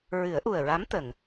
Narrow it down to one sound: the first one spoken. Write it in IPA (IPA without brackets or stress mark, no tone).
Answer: ɹ